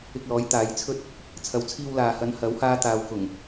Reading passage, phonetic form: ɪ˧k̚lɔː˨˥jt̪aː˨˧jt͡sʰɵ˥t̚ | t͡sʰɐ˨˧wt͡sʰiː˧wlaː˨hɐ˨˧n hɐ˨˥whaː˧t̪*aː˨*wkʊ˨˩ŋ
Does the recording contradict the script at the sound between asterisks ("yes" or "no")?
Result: no